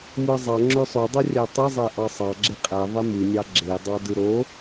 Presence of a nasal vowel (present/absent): absent